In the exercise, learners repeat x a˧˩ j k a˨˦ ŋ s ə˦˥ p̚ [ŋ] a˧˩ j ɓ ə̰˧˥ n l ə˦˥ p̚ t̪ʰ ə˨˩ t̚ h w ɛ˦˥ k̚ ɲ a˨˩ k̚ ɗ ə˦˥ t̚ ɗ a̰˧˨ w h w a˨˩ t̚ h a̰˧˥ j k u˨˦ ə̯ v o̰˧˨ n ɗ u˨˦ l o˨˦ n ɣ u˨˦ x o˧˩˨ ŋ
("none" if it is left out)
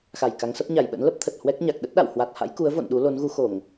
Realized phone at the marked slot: ɲ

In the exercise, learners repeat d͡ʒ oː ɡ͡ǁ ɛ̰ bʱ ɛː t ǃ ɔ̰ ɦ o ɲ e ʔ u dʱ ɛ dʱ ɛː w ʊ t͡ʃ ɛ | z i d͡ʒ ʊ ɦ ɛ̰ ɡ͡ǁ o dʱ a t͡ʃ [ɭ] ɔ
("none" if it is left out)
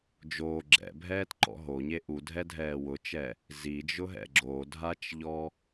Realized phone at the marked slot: ʎ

